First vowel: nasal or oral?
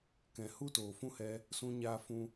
nasal